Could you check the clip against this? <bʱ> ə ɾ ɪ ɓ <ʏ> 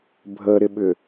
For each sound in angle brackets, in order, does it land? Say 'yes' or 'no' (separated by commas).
yes, yes